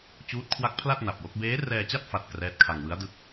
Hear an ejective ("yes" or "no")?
no